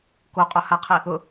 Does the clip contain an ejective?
yes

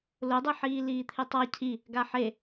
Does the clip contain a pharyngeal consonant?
yes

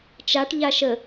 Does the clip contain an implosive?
no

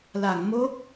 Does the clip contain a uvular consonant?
no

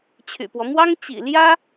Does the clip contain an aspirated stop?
yes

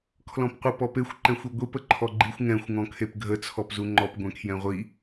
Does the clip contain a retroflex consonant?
no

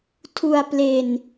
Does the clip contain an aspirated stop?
yes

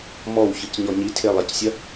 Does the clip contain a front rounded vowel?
no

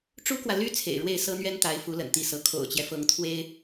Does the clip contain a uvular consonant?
no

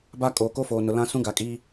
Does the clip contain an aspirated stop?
no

